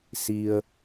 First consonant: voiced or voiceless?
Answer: voiceless